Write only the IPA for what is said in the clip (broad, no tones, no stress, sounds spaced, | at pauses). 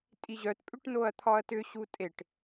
tʼ i ʑ œ t pʼ ʏ ʈ n o ɐ̯ t̪ʰ ɒ ɐ̯ t ʏ ɕ u tʼ e ʈ